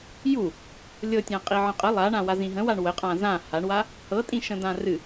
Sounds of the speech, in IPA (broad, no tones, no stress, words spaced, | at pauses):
ju | lʲɤtʲã qʼiʕə̃qʼə lˠaɳã wazĩɦə̃waɳ wə qʼãzã haɳwa | hɤtʼĩ ʃə̃d̪ãrɨ